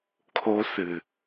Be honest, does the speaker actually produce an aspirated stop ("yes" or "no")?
yes